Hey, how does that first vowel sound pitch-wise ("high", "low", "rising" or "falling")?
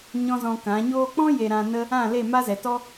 high